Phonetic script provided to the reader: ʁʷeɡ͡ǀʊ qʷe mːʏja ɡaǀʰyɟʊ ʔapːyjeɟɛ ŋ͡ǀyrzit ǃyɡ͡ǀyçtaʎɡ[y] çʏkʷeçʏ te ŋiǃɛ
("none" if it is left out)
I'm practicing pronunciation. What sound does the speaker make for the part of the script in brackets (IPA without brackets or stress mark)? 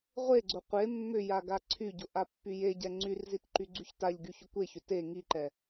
y